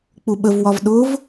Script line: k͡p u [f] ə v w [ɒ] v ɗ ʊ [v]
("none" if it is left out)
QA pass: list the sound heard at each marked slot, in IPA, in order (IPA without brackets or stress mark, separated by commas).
ɓ, ɒ, v